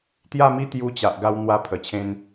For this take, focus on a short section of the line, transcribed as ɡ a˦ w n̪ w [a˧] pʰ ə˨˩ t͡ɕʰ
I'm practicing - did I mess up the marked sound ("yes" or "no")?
yes